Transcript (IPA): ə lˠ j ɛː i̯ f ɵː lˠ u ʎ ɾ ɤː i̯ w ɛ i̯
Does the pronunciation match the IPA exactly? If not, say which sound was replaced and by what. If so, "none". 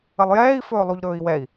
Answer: ɤː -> ɵː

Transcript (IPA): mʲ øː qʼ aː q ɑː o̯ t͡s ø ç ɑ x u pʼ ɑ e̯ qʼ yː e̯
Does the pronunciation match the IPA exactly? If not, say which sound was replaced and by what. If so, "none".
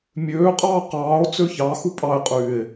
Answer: aː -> ɑː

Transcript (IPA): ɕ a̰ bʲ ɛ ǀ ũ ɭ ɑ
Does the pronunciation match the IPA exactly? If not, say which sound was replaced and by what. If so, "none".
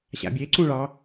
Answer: ɛ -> e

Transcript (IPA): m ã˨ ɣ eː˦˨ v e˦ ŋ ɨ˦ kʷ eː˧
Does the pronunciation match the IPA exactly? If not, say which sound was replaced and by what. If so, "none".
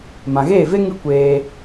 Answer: none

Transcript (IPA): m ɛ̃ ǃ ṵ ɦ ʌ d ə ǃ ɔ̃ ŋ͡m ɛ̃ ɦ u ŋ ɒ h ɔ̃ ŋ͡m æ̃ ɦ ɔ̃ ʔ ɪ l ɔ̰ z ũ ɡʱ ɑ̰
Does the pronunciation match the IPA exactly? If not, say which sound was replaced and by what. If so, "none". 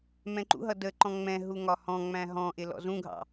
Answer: none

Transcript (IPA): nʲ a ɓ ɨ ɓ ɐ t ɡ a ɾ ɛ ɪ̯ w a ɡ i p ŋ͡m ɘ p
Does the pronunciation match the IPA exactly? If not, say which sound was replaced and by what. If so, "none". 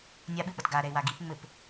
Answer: none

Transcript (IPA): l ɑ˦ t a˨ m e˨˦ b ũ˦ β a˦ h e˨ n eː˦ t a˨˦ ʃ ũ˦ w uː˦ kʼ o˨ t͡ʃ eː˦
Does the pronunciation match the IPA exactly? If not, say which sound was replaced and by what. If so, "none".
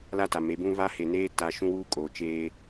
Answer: ɑ˦ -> a˦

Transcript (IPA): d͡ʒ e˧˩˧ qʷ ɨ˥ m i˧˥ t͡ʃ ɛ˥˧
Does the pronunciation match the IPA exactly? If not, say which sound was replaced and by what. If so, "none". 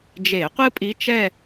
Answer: m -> pʼ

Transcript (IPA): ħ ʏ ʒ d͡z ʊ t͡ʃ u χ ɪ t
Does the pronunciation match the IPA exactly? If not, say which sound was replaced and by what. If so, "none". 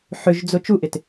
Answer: χ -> ʔ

